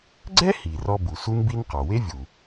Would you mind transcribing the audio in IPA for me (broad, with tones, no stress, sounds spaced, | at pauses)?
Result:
ɡ͡ǀ ɛ˥ h i˩ r ɔ˧ b u˩ s u˥ n b i˥ n q ɔ˩ w e˥ vʲ u˩